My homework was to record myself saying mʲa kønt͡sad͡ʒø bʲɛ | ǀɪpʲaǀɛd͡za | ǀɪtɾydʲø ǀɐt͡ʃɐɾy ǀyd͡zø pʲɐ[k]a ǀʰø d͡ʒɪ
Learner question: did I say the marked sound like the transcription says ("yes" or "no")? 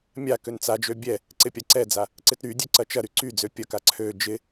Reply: yes